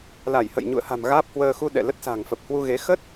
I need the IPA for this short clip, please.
l a˧˩ j h ə̰˧˨ j ɲ ṵ˧˨ ə̯ h a̤˨˩ m ɣ aː˦˥ p̚ h w əː˧ x u˧ ɗ ɛ̰˧˨ l ə˦˥ t̚ s a̤˨˩ ŋ f ə˨˩ p̚ h w u˧ ɣ e˨˦ x ə˦˥ t̚

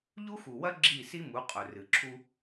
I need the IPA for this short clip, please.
ʎ u˦ x u˨ w ɐ˦ ɡ͡ǁ i˦˨ s i˦ m u˨˦ qʼ ɵ˨ r ɨ˨ ǁʰ u˦

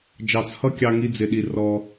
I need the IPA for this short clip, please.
d͡ʒ ɑ˧˩ t͡s h ʌ˥˧ kʲ ɑ˧ ŋ i˥˧ d͡z ɪ˧ ɗ i˧ r ɔ˧

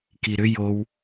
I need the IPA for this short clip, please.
k i ɾ ʏ j o w

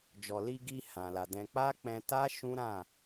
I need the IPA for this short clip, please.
d͡ʒ ɔ˨ l i˧ ɡ i˧ h ã˨ l a˨ d ɛ̃˧ k͡p a˦ k͡p ɛ̃˧ t a˦ ʃ ũ˦ ɾ ã˦˨

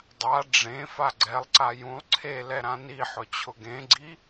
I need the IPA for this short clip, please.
dˤ a ɖ͡ʐ ẽ f a ɡ͡ǀ ɛ lˠ ǀ a j ũ lˠ ǀʰ e l ɛ ɾ ã n i ħ ʊ t͡ɕʰ ʊ ɡ ẽ ɡ͡ǀ i

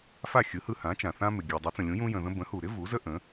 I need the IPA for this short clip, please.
f a˥˩ xʲ ɯ˩˥ h ɯ˧ h ã˩˥ t͡ʃ ã˩ θ ã˥ m ɪ˩ ɡʲ ɯ˩ dˤ u˩˥ t͡s ə̃˩ lʲ ũ˩˥ j ũ˥ j ə̃˧ ð ə̃˥ b ə̃˩˥ h u˩ ɾ ɪ˥ v u˩˥ z ə˥ ʔ ə̃˩˥

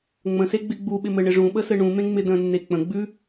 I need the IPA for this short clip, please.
ŋ͡m ə̃ s e ɡ͡b ɪ ɡ͡b u ɓ ɪ m ɘ ɳ ɪ ʐ ũ ɓ ə s ɘ ɳ ũ m ẽ ŋ͡m ɪ d ə̃ nː e k͡p ə̃ ɡ͡b ʉ

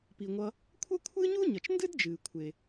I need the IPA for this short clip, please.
p i˩ ŋʷ ʌ˨ | kʷʰ ə˥ kʷʰ ɨ˥ ɲ u˥ ɲ ʌ˩ t͡ʃ n d ɨ˥ d d͡ʒ ɨː˩ kʷʰ e˩

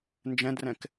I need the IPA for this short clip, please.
n d͡ʒ ɛ̃ d r ɛ̃ k

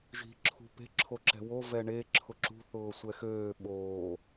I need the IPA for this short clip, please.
ʒ i̤ ǁʰ ṳ p e̤ ǁʰ o ǁ ɛ̤ w o v ɛ ɳ e ǁʰ ʊ ǁ ṳ θ ʊː sʷ ɛ x øː ɓ oː

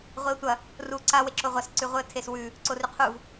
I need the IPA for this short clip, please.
ʁʷ i ʊ̯ tʷ ɐ | r u ǀ a w e ǁ o ʁʷ ɐ s ǀ ʉ ʁʷ ɨ ə̯ tʰ e s w ʉ | ǀ o r ʉ qʰ u v

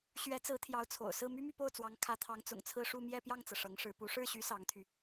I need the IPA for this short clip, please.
ɕ ɥ ɛ˧˥ t͡s ɹ̩˧˥ t̪ʰ j ɑ˧˥ ʊ̯ t͡sʰ o̰˨˩ ʊ̯ s ɹ̩˥˩ m y˥ m y˥˧ p o˥˩ ʊ̯ t͡s w ɑ˧˥ ŋ kʰ ä˧˥ t̪ʰ ɑ˧˥ ŋ t͡s ʊ̰˨˩ ŋ t͡sʰ ɹ̩˥˧ ʂ u˥˧ m j ɛ˥˧ p j ɑ˥˩ ŋ t͡s ɤ˩ ʂ ɤ˧˥ ŋ ʂ ɻ̩˧˥ p u˧˥ ʂ ɻ̩˥˩ ɕ y˧˥ s ɑ˧˥ ŋ t̪ʰ y˧

